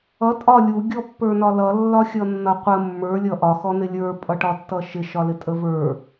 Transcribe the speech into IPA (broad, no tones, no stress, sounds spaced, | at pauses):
ʌ tʼ ɒ lʲ u ɡʲ ɔ pː ə˞ n ɒ l ʌ lː ɒ xʲ ʌ nː ʌ qʷ ə mː ə˞ lʲ ʌ ʔ ɒ x ɔ n ɪ lʲ ə˞ pʼ ʌ ʈ ɒ tː ʌ ʃ ɪ ʃ ɒ l ɪ tʼ ə v ə˞